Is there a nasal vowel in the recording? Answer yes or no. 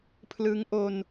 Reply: no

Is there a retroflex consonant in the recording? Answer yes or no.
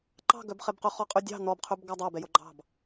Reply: no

